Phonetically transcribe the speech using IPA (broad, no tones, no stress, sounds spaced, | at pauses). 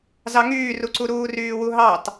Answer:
z ɑ ŋ yː r u ǀ u ɾ uː r yː w u ɦ ɑ t